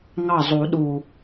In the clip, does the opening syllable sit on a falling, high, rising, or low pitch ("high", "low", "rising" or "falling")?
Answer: falling